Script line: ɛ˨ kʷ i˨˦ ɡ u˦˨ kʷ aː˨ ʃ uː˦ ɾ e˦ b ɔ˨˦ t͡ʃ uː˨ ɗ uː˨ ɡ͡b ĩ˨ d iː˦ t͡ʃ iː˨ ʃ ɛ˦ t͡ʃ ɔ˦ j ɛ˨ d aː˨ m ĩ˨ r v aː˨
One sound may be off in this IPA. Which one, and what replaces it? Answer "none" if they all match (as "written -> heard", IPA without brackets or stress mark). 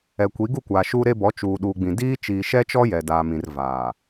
none